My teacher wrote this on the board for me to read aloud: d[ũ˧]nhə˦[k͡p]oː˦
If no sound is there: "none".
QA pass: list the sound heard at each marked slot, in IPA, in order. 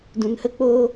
ũ˧, k͡p

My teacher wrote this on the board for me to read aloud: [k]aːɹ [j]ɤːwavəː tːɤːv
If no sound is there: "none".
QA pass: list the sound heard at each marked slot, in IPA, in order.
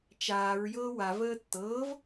t͡ʃ, j

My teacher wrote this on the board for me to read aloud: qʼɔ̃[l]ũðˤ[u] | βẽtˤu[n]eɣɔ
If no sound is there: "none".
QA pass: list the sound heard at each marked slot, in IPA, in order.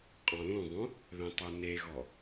l, ũ, n

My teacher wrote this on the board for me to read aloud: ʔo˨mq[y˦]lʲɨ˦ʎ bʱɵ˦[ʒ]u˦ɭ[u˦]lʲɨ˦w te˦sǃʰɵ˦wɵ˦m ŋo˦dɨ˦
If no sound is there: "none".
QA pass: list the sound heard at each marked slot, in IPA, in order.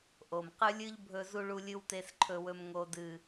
ɨ˦, z, u˦

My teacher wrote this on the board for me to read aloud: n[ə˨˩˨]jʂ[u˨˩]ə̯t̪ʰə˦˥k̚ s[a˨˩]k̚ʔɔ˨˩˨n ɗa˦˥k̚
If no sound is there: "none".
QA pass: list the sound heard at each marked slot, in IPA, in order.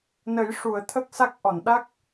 ə˨˩˦, u˨˩˨, a˦˥

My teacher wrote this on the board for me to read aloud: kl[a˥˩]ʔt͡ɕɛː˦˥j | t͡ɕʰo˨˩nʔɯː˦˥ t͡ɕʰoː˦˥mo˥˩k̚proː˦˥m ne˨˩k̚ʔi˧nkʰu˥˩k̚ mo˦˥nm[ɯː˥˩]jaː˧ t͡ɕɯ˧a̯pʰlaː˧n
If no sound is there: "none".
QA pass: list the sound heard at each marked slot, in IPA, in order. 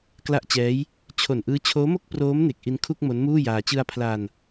a˥˩, uː˥˩

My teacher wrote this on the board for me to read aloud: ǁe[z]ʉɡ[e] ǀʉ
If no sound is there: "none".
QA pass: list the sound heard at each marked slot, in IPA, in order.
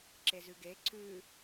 z, e

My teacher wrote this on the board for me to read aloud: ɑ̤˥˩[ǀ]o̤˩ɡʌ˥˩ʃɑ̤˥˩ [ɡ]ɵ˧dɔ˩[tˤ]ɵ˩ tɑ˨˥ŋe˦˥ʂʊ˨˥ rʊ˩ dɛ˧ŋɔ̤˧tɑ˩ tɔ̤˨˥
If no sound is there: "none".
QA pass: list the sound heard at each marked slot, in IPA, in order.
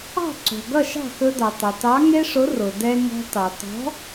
ǀ, x, tˤ

